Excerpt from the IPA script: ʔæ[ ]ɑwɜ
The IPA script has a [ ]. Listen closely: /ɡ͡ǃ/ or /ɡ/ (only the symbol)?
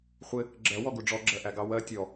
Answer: ɡ